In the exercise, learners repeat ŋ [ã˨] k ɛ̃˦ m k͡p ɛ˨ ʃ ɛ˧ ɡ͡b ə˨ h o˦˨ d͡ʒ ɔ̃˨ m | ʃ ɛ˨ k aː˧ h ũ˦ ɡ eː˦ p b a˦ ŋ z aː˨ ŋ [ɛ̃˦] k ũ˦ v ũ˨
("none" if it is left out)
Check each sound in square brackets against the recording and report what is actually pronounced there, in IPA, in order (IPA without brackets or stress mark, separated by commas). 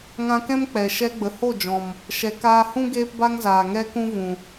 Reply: ã˧, ɛ˦